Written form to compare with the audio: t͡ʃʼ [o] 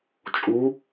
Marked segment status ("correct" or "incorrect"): incorrect